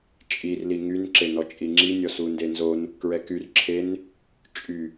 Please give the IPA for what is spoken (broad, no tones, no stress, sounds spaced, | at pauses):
t͡ʃʼ i r l i ŋ y n ǁ e n ɔ t͡ʃʼ i ŋ͡ǁ i nʲ ɔ s u n d e n z o n | k ɹ ɛ k y r ǁʰ e n | t͡ʃʼ y